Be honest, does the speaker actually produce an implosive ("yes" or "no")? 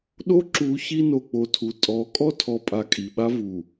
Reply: yes